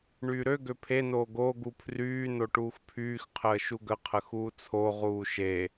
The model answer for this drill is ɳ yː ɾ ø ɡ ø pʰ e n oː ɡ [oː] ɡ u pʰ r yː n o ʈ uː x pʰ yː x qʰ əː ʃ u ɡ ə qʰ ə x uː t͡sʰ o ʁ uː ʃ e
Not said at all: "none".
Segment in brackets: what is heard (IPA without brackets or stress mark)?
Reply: oː